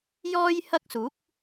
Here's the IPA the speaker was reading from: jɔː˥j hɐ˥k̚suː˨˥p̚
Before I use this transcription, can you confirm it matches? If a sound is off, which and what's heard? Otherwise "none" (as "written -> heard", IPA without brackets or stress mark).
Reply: p̚ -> k̚